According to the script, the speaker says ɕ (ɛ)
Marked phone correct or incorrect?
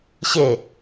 incorrect